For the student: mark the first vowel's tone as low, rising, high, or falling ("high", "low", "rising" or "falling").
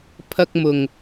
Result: low